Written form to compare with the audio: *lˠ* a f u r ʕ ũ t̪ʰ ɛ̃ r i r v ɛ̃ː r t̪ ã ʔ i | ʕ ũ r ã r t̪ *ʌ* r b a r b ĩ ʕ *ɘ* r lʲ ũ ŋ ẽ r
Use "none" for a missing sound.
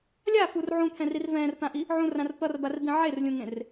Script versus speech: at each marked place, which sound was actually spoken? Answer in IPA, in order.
lʲ, ʌ, e

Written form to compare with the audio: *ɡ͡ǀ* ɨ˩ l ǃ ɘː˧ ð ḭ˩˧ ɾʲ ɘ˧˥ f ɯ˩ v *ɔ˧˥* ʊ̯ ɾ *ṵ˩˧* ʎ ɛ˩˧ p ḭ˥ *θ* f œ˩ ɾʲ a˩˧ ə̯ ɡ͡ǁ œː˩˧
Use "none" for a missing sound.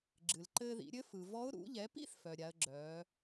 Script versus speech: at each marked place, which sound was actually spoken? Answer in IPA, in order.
ɡ͡ǁ, ɔ˧˥, ṵ˩˧, θ

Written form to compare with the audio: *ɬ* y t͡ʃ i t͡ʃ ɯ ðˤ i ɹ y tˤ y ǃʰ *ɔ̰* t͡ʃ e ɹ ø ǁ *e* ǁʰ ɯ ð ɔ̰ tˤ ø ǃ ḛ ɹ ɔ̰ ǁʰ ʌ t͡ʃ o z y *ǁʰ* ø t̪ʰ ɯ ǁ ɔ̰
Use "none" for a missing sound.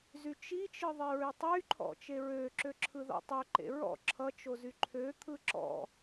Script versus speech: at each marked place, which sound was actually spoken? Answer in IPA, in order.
z, ɔ̰, ø, ǃʰ

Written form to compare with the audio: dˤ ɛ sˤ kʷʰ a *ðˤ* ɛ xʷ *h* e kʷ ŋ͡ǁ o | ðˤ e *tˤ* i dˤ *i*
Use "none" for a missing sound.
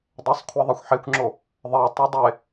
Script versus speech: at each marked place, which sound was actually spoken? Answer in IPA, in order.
ðˤ, ħ, tˤ, e

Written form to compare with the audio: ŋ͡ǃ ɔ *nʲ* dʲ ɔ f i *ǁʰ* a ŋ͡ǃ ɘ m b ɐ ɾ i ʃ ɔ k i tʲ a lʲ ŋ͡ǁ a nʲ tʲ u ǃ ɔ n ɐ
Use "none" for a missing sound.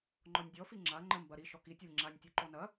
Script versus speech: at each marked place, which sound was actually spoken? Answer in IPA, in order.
nʲ, ŋ͡ǁ

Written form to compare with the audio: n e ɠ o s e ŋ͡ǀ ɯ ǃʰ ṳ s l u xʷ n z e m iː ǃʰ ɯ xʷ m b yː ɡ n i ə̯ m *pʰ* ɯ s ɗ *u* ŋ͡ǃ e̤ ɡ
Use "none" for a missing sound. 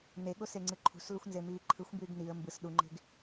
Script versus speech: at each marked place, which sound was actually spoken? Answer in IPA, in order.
b, u

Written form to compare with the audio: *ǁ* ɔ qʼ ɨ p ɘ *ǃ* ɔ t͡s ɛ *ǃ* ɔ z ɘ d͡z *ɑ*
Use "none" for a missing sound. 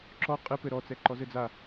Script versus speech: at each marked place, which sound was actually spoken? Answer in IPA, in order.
ǁ, ɾ, ǃ, a

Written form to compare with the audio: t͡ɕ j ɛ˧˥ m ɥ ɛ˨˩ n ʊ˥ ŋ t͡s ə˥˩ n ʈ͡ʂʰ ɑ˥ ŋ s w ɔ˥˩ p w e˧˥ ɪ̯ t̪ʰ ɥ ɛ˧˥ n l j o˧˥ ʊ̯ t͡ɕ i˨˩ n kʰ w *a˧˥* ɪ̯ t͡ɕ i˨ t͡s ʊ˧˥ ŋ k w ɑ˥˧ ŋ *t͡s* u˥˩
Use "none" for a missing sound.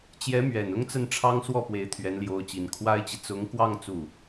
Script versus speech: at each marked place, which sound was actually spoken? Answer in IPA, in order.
a˥, t͡s

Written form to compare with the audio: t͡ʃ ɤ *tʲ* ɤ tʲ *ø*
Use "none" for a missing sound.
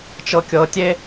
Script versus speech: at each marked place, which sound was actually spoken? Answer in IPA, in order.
kʲ, e

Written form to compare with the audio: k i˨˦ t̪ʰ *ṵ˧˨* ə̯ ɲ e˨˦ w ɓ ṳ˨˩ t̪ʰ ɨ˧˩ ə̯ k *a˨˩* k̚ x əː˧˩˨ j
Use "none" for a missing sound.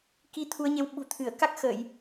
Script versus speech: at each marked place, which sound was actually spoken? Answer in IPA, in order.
u˨˦, a˦˥

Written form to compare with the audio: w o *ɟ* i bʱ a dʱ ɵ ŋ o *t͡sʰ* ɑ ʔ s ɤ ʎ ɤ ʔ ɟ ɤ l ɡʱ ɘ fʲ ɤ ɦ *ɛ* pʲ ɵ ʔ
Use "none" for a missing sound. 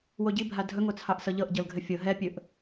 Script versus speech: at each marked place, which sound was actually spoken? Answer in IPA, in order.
ɟ, t͡sʰ, ɛ

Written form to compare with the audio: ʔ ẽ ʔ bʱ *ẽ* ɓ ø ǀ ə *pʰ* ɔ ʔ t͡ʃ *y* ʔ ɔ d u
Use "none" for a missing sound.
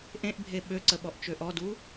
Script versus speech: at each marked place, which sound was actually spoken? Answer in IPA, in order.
e, ɓ, ø

